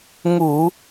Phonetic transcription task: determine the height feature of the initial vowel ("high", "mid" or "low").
high